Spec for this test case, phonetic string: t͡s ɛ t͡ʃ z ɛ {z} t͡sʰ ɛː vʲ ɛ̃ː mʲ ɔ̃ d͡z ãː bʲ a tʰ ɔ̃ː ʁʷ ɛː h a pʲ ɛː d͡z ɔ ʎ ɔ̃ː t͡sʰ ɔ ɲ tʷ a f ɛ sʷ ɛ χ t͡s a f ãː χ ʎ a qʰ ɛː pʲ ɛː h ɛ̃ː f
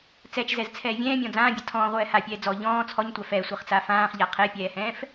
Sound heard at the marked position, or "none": z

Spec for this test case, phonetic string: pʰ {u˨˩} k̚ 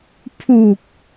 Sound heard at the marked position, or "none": u˨˩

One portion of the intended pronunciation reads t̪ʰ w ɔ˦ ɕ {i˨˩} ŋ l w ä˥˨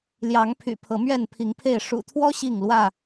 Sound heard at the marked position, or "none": i˥˨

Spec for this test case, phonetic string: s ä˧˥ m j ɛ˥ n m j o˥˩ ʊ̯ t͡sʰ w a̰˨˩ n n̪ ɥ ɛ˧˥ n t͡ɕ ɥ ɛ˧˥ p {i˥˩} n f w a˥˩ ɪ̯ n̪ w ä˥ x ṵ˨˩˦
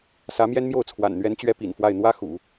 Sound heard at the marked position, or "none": ḭ˨˩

